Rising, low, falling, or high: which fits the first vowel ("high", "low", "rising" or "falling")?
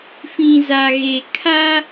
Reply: low